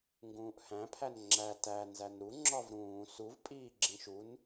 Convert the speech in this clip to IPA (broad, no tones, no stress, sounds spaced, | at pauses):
ŋ ɡ ũː ʔ h æ̃ pʰ æ n ŋ͡ǁ æ t æ n z æ n ɾ u ŋ͡ǁ ɒ v ɾ ũː s u v pʼ iː ɡ͡ǁ ĩ ʃ u n